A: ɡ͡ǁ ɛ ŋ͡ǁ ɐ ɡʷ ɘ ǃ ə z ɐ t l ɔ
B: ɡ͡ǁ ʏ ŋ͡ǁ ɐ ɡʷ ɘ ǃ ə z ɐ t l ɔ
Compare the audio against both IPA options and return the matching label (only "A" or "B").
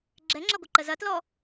A